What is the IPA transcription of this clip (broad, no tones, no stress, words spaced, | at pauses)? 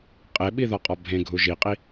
qʼeɓiðɒqʼɒ bʱẽɡʱu ʒiqʼi